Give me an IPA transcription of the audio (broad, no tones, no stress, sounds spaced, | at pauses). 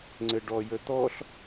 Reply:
ŋ͡ǀ ɘ ɖ ɔ j ə t̪ ɔ ɬ